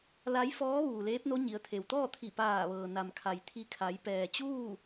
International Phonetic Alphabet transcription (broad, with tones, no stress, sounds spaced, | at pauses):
l a˧˥ j f ɔː˧˥ ʋ uː˩ l eː˧˥ p̚ n o˧˥ ɲ i˩˧ ə̯ t̪ʰ e˩ w t̪ ɔː˥˨ t̪ʰ i˧˩ p aː˧˩ ʋ ɤː˩ n a˩ m kʰ a˩ j t̪ʰ i˧ kʰ a˩˧ j p ɛː˩ t͡ɕ uː˥˨